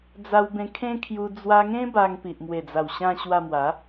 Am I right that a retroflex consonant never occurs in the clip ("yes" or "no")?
yes